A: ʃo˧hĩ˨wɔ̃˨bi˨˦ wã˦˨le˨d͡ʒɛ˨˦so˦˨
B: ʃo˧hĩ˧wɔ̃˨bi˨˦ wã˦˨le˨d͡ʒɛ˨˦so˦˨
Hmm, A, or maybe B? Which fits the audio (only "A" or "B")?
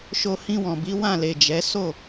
B